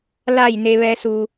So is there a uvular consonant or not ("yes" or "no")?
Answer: no